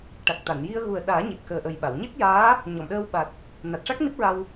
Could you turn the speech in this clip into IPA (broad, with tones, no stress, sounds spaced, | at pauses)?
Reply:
ʈ a˨˩ k̚ t̪ a˨˩˨ n j i˧ ə̯ ɣ u˨˩ ə̯ ɗ aː˨˩˦ ɲ i˨˩ t̚ k əː˨˩ ʔ ə˨˩ j ɓ a˨˩˨ w ɲ e˦˥ k̚ j aː˧˥ | ɲ ɔ˨˩˨ m ɗ əː˧ w ɓ a˨˩ t̚ | n a˨˩ t̚ ʂ a˦˥ k̚ n i˦˥ p̚ ɹ a˧ w